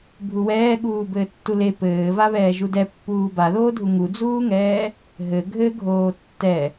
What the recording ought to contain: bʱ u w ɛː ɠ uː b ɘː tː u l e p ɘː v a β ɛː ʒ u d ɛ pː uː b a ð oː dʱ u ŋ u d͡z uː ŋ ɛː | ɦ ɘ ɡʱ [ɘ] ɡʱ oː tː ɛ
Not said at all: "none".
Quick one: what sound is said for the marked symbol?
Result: ɘ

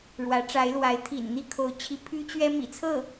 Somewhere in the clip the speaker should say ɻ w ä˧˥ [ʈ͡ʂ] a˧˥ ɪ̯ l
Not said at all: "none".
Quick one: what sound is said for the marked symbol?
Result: ʈ͡ʂ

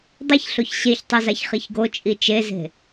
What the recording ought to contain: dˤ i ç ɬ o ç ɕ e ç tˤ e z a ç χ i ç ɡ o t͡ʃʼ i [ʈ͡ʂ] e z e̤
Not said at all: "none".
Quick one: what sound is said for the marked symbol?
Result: t͡ʃ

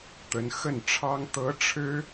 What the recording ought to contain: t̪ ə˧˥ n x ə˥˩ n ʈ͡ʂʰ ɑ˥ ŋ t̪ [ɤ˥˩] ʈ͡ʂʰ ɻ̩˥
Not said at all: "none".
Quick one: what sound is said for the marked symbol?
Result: ɤ˧˥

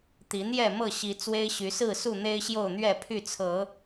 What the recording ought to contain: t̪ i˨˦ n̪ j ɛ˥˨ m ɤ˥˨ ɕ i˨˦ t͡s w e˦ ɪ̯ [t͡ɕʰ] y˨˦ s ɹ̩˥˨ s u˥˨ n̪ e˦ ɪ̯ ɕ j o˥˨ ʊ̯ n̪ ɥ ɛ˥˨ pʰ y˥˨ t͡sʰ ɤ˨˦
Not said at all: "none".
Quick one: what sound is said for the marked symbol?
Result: ɕ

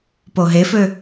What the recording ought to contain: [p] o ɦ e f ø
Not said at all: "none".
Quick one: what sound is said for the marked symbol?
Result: p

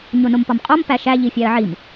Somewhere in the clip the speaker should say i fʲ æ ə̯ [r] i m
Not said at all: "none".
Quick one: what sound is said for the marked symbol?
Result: ʕ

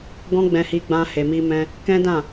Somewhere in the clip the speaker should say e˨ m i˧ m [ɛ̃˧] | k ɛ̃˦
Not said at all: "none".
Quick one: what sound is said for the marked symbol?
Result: ɛ̃˧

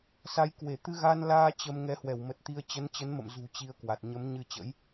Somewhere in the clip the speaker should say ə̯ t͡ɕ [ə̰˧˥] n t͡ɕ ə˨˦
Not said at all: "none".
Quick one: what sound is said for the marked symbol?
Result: ə˨˦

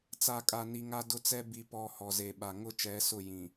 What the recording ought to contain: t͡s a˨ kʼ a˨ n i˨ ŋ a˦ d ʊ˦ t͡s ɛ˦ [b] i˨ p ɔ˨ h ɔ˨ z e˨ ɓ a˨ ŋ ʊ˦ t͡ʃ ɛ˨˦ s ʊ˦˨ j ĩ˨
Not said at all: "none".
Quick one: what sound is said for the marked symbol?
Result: b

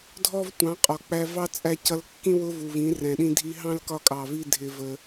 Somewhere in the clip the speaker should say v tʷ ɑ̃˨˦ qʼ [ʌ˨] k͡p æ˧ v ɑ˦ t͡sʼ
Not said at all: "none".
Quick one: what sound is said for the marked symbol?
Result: ɒ˨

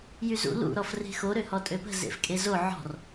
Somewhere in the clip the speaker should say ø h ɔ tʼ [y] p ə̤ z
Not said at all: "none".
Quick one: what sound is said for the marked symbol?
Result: ø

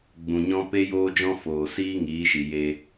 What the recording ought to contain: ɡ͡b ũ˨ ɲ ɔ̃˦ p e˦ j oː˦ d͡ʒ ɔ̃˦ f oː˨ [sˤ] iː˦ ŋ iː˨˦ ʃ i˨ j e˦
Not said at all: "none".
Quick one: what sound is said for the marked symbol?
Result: s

